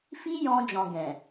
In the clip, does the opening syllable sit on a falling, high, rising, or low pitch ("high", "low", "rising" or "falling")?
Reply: high